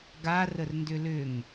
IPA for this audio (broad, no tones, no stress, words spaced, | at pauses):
ɡa rərndʏlʏŋ